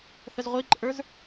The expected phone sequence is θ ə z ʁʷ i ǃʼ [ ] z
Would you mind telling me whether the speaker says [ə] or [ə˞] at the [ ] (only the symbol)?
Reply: ə˞